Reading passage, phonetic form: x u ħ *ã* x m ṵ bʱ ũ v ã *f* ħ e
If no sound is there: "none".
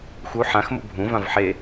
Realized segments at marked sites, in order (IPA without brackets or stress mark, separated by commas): ã, v